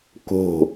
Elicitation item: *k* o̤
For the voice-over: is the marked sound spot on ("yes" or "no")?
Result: yes